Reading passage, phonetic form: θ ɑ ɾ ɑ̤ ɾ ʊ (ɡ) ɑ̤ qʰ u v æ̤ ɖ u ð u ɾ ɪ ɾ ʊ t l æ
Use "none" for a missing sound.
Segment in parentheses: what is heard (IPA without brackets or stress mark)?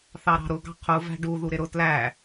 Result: ɡ